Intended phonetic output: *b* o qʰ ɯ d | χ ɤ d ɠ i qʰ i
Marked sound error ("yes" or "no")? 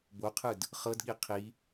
no